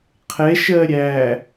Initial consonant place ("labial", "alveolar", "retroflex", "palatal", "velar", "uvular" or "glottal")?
uvular